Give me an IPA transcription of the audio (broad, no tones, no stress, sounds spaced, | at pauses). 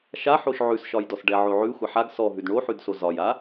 ʃ a ħ o ʃ ʕ ʉ s ʃ ɒ j d ɔ s ɖ ɛ ʕ o ʕ ʉ xʷ a ħ a ɡ s ɔ ɦ ʉ d ɳ o ħ ʉ d s o z ɒ j a